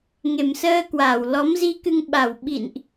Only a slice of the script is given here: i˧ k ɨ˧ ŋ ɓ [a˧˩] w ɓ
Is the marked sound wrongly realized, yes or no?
no